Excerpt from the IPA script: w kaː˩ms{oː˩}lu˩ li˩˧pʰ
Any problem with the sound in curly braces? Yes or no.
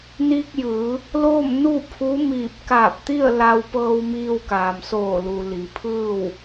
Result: yes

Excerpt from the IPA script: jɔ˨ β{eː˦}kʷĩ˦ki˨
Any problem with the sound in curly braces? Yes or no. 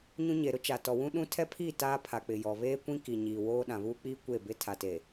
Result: no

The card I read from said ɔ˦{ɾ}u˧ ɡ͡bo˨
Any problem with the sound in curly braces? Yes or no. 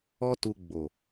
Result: yes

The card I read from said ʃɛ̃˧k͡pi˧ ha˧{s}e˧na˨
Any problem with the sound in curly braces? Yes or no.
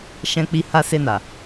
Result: no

